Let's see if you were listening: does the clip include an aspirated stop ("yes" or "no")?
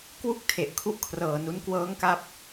yes